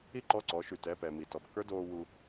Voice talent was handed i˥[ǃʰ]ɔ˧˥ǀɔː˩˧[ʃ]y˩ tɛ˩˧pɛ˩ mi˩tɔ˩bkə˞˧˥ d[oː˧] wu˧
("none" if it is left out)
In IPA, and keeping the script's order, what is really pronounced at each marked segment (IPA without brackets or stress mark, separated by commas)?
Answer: ǃ, ʃ, oː˧